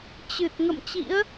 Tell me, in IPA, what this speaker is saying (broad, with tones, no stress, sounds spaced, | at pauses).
t͡ɕ ɨ˨˩ t̚ ŋ ə̰˧˨ m t͡ɕ ḭ˧˥ ə̯